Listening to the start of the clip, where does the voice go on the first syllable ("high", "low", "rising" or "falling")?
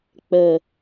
low